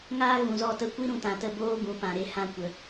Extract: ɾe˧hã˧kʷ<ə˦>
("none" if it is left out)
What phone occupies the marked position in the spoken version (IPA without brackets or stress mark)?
ə˨